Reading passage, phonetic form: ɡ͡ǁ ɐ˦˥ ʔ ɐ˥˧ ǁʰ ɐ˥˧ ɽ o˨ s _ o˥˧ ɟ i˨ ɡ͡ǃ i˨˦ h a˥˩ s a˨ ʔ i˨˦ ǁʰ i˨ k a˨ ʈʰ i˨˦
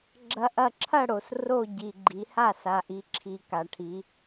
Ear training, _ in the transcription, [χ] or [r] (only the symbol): r